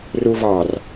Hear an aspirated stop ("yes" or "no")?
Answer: no